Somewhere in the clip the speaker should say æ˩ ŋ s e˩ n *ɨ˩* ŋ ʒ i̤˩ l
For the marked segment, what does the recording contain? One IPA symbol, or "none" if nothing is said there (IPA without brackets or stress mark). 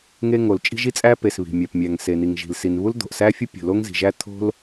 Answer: i˩